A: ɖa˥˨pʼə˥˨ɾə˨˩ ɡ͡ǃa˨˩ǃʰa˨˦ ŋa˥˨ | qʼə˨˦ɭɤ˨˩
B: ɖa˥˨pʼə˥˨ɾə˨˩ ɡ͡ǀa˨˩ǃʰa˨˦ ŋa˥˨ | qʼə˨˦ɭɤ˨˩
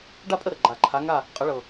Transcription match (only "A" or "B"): A